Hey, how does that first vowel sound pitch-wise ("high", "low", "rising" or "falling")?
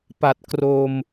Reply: low